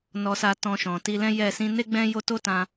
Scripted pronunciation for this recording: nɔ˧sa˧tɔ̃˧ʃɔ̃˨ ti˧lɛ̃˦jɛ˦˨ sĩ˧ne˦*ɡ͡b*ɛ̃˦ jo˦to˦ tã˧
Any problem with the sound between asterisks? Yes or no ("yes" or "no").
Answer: no